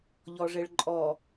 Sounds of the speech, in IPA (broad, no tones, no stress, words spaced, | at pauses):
ʎɔʐeɭǃʼɔ